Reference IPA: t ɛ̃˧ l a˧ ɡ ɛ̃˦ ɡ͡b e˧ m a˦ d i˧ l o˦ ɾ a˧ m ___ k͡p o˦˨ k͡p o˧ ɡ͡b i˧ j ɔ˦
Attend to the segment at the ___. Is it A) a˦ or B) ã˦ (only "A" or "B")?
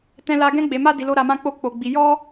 B